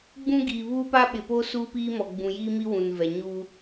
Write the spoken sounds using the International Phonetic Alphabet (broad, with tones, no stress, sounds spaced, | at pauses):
ɡ͡b ũ˦ ɡ iː˨ β uː˦ p a˦ ɓ ɪ˨ p o˦ s uː˦ p iː˦ m ɔ˨ ɡ͡b ũ˨ j iː˦ m i˦ w ũ˨ n v ɛ˨ ɲ u˦